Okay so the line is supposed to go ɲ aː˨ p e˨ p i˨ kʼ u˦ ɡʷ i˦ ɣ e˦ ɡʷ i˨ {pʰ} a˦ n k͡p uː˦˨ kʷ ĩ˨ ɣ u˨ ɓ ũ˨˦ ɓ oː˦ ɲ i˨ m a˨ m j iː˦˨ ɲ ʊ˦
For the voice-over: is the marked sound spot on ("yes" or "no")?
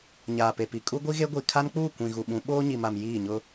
no